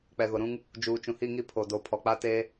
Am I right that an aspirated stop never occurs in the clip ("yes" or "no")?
no